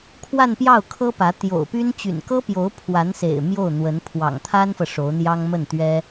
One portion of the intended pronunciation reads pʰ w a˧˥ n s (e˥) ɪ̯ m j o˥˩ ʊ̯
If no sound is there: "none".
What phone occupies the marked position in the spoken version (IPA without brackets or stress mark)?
ḛ˨˩